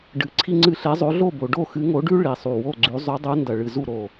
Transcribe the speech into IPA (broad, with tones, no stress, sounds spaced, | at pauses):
ɖ ɨ˨˦ ǀʰ i˦ ŋ͡ǀ ɨ˦˨ ɬ e˨˦ zˤ o˨˦ ɮ o˦˨ b o˨˦ ɖ o˦˨ x ɨ˨˦ ŋ o˨˦ ɖ ʉ˦ ɭ i˨˩ sˤ u˨˩ w o˦˨ ɡ͡ǀ ʉ˨˦ zˤ ʉ˨˦ dˤ u˨˦ n d ɐ˨˩ ɭ ɨ˨˩ z u˦˨ ɾ o˨˩